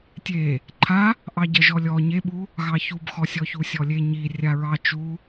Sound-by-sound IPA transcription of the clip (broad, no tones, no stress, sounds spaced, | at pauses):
tʲ e | ǃʰ a | ʔ ɑ ɟ ɜ ʒ ɔ lʲ ɔ ɲ e ɓ u | ɣ ɑ ç u b x ɔ sʲ ɔ ç u sʲ ɔ lʲ e ɲ i rʲ a ɹ ɑ t͡ʃ u